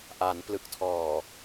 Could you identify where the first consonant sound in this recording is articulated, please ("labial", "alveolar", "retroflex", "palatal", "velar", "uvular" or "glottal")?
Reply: glottal